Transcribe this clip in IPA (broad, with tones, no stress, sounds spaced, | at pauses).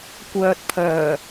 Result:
kʷ œː˨ t̚ pʰ œː˨˩